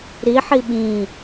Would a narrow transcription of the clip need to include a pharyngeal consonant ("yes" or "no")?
yes